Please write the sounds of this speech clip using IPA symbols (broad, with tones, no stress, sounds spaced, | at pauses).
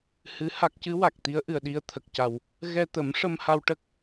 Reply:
h ɨ˧˥ h a˦˥ k̚ c ɨ˧˥ w a˨˩ k̚ t̪ i˧˥ ə̯ ʔ ɨ˨˩ ə̯ ɗ i˧ ə̯ t̪ʰ ə˨˩ k̚ c a˨˩ w | ɣ ɛ˧ t̪ ə˨˩˦ m ʂ ə˧ m h a˧ w ʈ ə˦˥ k̚